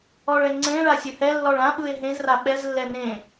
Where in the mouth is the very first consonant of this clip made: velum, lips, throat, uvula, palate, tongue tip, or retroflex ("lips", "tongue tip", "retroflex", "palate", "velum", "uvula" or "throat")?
retroflex